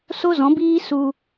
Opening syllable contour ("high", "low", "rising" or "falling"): high